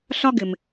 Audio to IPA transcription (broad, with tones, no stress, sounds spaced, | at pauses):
ɬ ɒ˥ ɡ ɪ˩ m